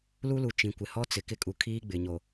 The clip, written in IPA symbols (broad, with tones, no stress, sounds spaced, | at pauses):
l u˦ l u˨ t͡ʃ ĩ˨ kʷ ɪ˨ h ɔ˦ t͡s ɪ˨ k ɪ˦ kʼ u˨ kʰ iː˦ ɡ͡b ɪ˨ ɲ o˨